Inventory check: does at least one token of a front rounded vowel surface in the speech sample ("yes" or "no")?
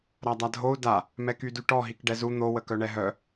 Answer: yes